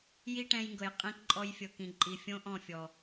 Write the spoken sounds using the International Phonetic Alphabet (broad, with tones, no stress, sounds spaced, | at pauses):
j i˦ ʈ ɛ̃˧ j ŋ ɡ ɤ˨ j qʼ ĩ˧ k ǃʼ ɔ˧ j fʲ ɤ˧ k ĩ˨ ǃʼ i˨ fʲ õ˦ ʔ ɔ̃˦˨ fʲ ɔ˨